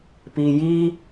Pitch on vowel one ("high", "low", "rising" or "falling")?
low